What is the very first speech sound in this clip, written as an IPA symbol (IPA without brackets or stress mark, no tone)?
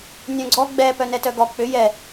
nʲ